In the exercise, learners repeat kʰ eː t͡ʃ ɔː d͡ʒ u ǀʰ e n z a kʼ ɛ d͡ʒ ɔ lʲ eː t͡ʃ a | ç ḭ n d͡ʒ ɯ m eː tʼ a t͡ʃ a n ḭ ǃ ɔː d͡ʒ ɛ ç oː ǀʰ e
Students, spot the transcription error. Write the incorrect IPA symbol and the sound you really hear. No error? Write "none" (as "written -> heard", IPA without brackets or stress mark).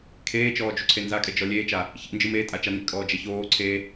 ǃ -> kʼ